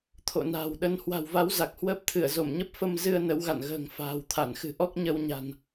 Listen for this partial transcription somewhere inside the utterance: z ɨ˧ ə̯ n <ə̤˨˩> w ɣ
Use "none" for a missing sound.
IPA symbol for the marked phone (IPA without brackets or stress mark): ə˨˦